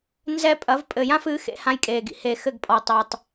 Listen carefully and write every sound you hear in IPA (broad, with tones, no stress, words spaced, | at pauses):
nzɛ˦pʼɐ˨˦v pʼɘ˨jã˦fɨ˨˦ xḛ˦hã˦jkʼeː˨ɡḭ˨ he˨ xɘ˦˨ɡpʼɔ˨tˤɛ˨tˤ